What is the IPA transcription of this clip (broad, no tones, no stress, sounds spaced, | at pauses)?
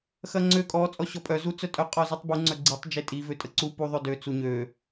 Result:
x ɐ ŋ͡ǀ ø kʼ ɔ t͡sʼ ɔ ɕ ɔ pʼ œ z u t͡s œ tʼ œ qʼ ɔ z u tˤ b u ŋ͡ǀ œ ɡ͡ǀ i tˤ d͡ʒ e tʼ i v ø tʼ ə ǀ u p u ðˤ ø d ø t͡s u ɲ ø